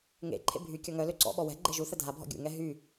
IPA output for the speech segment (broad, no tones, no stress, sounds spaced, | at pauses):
ŋ ḛ ǃʰ ḛ bʱ y kʲ ɔ ŋ œ l ø ǀ ɔ̰ ɓ ɔ w ɛ̤ ɡ͡ǃ e ʒ u θ ə dʱ a bʱ ɔ̰ ɡʲ ṵ ŋ ɛ ɦ y